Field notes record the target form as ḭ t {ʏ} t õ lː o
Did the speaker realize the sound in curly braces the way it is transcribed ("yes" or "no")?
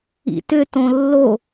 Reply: yes